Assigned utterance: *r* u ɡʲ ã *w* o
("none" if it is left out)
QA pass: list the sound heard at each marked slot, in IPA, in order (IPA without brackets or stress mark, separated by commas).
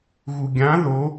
ɣ, ð